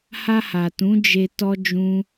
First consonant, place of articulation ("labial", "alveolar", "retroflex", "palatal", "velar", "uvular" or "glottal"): glottal